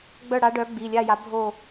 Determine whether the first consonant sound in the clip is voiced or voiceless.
voiced